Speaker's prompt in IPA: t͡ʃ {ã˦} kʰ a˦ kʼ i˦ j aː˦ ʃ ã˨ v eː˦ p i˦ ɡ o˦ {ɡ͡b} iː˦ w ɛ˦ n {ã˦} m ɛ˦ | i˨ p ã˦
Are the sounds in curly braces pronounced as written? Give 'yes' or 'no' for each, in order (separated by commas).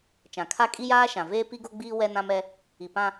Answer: no, yes, yes